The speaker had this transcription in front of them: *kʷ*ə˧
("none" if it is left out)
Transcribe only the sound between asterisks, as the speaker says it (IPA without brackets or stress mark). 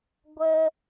ɡʷ